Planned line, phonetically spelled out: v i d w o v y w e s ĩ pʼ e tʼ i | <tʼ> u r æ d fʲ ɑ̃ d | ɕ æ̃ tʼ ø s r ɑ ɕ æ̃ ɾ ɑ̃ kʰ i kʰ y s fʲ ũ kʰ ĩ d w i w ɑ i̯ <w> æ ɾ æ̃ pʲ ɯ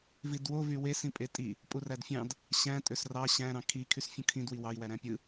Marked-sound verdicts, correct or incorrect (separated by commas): incorrect, correct